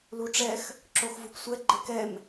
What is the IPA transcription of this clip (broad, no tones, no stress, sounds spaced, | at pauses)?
l u ʈ͡ʂ ɛ x | ǁ o x v u p sʷ ɛ ɡ͡ǃ ɪ k ɛ m